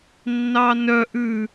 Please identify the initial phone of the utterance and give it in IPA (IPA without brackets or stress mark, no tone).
nː